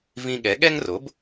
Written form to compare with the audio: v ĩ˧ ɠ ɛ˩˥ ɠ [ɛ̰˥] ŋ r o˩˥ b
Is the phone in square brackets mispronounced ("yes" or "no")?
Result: yes